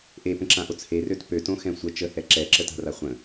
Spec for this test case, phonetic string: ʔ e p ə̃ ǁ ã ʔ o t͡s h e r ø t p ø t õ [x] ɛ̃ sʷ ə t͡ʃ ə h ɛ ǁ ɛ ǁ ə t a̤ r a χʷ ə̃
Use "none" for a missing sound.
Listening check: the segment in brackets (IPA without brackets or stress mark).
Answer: x